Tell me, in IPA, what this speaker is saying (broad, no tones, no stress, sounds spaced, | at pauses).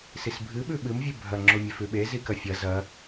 s i s bʱ ɨ ɓ ʉ ɓ ɨ m vʲ ʉ bʱ ɐ ŋ͡ǁ o mʲ e f ʉ ɓ e z i k ɐ fʲ ɐ z ɐ